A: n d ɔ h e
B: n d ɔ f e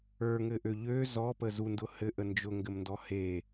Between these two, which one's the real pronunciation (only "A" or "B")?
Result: A